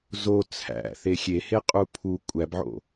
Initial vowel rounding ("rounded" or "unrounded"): rounded